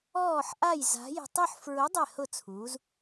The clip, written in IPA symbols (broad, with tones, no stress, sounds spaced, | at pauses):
ɔː˧˩ ħ ʔ a˧˩ j z a̤˩˧ j ɛ̤˧˩ tˤ u˥˧ ħ f ɹ ʊ˨˥ dˤ ɛ˧˩ h ʊ˧˩ t͡sʰ uː˩˧ z